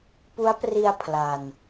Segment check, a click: absent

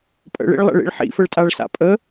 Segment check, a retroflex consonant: present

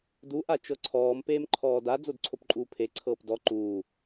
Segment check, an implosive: absent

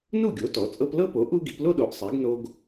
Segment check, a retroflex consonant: absent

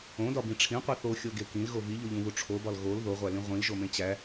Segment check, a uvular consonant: present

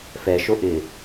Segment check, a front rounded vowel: absent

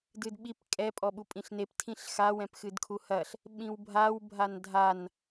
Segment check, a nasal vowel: present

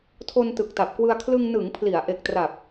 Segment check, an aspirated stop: present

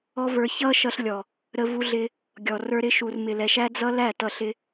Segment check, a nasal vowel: absent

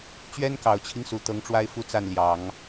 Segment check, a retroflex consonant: present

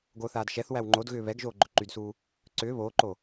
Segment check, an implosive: absent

